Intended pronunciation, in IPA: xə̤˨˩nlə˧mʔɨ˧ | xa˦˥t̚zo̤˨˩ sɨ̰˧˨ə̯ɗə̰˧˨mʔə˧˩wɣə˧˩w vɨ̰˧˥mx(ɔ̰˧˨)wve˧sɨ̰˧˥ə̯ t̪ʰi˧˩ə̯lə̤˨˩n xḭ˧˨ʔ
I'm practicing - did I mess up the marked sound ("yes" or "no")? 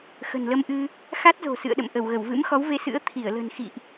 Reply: yes